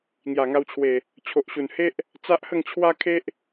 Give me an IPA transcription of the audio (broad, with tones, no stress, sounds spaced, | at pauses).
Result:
ŋ j a˨˩ ŋ a˧ w t͡ɕʰ w e˨˩ | t͡ɕʰ o˨ ʔ ɕ u˨˩ n h e˦ ʔ | t͡s a˦ ʔ h ə˥˧ ŋ t͡ɕʰ w a˦ kʰ e˦ ʔ